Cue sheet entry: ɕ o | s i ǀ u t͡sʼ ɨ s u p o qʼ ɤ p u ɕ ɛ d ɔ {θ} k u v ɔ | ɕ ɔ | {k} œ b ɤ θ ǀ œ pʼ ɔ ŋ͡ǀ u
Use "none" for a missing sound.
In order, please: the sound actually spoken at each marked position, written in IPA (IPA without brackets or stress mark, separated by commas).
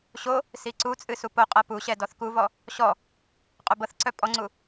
θ, qʼ